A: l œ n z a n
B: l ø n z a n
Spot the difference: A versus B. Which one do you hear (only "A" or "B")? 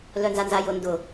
A